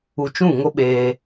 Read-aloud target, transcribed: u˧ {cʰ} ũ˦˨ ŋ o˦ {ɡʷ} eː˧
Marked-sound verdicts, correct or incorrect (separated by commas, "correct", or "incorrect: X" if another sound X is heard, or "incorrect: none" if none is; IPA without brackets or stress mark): incorrect: t͡ʃ, incorrect: ɓ